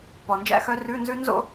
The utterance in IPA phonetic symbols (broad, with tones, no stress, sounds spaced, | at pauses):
p ɔ˨˩ n d͡ʒ æ̰˥ x œ˧˥ r ʉ˧˥˧ n z ʉ˥ n z o̰˥